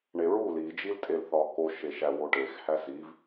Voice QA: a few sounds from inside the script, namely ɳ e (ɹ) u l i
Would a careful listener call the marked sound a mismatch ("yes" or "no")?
no